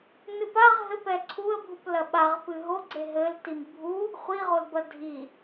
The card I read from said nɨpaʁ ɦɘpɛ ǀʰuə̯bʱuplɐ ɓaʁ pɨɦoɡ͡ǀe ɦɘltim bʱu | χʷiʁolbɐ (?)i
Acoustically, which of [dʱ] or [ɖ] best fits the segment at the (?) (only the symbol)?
dʱ